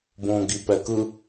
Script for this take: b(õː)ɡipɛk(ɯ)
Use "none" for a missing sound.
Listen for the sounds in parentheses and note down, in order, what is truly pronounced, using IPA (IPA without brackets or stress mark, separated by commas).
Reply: õː, ɯ